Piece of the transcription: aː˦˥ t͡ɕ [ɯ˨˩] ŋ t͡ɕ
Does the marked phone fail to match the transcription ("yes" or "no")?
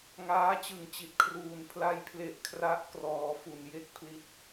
no